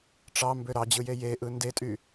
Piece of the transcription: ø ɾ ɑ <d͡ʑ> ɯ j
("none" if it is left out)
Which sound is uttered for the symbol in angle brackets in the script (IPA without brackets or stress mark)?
d͡ʑ